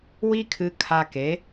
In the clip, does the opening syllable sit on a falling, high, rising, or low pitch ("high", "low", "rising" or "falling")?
high